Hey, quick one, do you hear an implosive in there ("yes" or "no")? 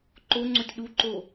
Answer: yes